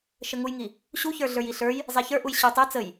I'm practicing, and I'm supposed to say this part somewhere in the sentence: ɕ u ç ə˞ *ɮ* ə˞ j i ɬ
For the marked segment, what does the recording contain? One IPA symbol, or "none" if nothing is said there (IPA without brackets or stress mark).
ɮ